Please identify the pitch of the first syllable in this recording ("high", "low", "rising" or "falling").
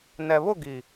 low